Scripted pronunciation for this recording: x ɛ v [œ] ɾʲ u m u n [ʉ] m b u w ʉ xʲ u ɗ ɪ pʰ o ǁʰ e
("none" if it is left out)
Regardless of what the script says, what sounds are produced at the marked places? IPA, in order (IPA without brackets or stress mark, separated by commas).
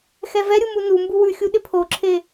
ɛ, u